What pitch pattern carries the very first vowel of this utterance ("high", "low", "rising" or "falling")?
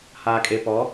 low